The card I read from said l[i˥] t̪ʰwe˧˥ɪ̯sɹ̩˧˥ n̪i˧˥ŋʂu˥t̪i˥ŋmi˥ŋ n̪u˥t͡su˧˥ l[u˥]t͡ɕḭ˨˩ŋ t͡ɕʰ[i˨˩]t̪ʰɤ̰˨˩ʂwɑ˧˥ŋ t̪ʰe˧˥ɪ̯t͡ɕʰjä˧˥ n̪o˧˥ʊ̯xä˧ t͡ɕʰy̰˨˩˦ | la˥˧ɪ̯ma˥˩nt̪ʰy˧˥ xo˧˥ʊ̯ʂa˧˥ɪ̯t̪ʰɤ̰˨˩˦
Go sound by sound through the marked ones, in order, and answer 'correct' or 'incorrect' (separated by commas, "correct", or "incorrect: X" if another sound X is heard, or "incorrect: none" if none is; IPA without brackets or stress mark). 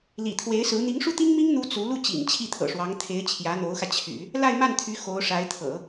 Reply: incorrect: ḭ˨˩, incorrect: u˥˩, incorrect: i˥˩